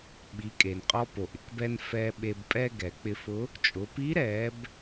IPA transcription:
ɓ i˩˧ kʼ e˩ n qʼ ɔ˧ p o˩ ʔ ɪ˩˧ k b ɛ˧ n f ɛː˧ ɓ e˧ b pʼ ɛ˥ ɡ ɛ˩˧ k͡p ɪ˧ f ʊ˧˥ | t͡ʃʼ ʊ˩˧ p i˧˥ ɾ ɛː˩˧ b

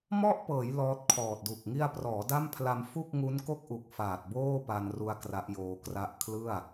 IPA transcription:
m ɔ˥˩ ʔ p ɤː˩˦ j l ɔː˦˥ t̚ kʰ ɔː˨˩ t̚ d u˨˩ k̚ ŋ i˧ a̯ p r ɔː˩˦ d a˥˩ m pʰ l a˧ m f u˥˩ k̚ ŋ u˦˥ n k o˥˩ k̚ ʔ u˨˩ k̚ f aː˨˩ t̚ b oː˥˩ p a˧ n r u˧ a̯ k r a˦˥ ʔ j oː˧ k r a˥˩ ʔ kʰ l ɯ˥˩ a̯

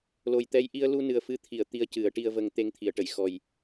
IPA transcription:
l o˨˩ j t̪ ɛ˧ j ʔ i˧ ə̯ l u˧ n ɨ˨˩ ə̯ f ɨ˧˥ t̪ʰ i˨˩˨ ə̯ t̪ i˧ ə̯ c ɨ˨˩˦ ə̯ ʈ i˧ ə̯ v ə˧ ŋ t̪ e˧ ŋ t̪ʰ i˨˩˨ ə̯ ʈ ə˨˩˨ j x ɔ˨˩ j

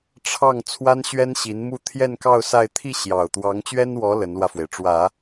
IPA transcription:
ʈ͡ʂʰ ɑ˥˩ ŋ t͡sʰ w a˥ n ɕ ɥ ɛ˥ n ɕ i˧˥ n m u˥˧ t̪ʰ j ɛ˥˧ n k ɑ˥˧ ʊ̯ s a˥˧ ɪ̯ t̪ʰ i˥˩ ɕ j ɑ˨˩ ʊ̯ t̪ w ɑ˧˥ ŋ t͡ɕ ɥ ɛ˥ n w ɔ˧˥ l ə˧˥ n l w ä˧ f w e˩ ɪ̯ ʈ͡ʂ w ä˨˩˦

